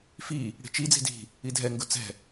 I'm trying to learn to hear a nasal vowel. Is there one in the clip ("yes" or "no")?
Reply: no